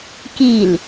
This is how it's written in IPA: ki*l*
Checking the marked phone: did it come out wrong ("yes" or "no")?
no